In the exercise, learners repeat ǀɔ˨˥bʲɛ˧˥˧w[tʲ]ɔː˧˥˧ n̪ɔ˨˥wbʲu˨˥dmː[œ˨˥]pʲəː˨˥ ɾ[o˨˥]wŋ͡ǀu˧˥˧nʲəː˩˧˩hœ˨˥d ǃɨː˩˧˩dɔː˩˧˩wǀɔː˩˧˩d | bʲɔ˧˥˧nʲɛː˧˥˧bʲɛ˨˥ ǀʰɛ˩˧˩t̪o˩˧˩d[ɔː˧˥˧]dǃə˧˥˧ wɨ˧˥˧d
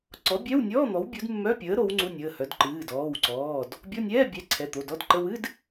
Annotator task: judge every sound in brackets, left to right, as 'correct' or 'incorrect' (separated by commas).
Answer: incorrect, incorrect, correct, incorrect